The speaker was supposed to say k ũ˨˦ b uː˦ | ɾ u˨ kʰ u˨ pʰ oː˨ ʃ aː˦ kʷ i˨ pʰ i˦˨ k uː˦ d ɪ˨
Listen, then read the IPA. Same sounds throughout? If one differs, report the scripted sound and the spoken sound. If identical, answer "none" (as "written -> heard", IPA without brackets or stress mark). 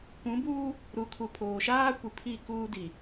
ɪ˨ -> i˨